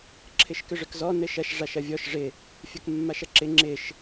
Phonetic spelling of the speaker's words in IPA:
ǁʰ ɪ ʃ k ʏ ʐ ʏ k z ɔ n ɘ ʃ ɐ ʃ ʐ a ʃ ɐ vʲ ɔ ʃ ʐ ɪ | fʲ ɐ k mː a ʃ ɐ ǁ ɪ ŋ͡ǁ ɪ ʃ

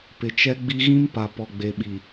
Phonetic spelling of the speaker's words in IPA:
p ɪ˨ t͡ʃ ɛ˦ ɡ͡b i˦ ɣ ĩ˦ m p a˨ p ɔ˨ ɡ͡b e˨ ɓ i˨

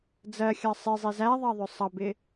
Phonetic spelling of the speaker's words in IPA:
d͡z ɜ xʲ ɑ sˤ ɪ zˤ i z æ ðˤ ɑ ðˤ ʊ sˤ ʌ b ɪ

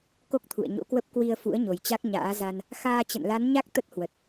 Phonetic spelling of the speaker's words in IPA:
k o˦˥ k̚ t̪ʰ ṵ˧˨ ə̯ ɲ o̰˧˥ k w ə˦˥ p̚ k w i˧ ə̯ f ṵ˧˥ ə̯ ɲ o˨˩ j t͡ɕ a˦˥ k̚ ɲ a̰ː˧˥ z a˧ n | x aː˧ t͡ɕ ə̰˧˨ n l a˨˦ n ɲ a˦˥ k̚ t̪ ə˦˥ t̚ h w ə˨˩ t̚

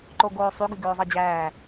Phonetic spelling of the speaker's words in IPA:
ǃ o ɡ oː sˤ y ɡ y ɡ øː zˤ ɑ d͡ʑ æː

